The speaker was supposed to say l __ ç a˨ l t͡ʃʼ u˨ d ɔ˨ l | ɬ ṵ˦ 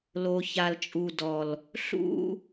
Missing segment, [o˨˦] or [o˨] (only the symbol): o˨